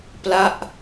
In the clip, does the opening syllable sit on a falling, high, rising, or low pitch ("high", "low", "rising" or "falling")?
falling